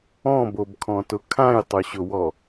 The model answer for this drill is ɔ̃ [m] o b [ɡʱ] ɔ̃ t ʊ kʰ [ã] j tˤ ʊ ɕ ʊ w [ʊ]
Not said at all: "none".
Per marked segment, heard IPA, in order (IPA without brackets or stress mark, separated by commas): b, kʰ, ã, ɔ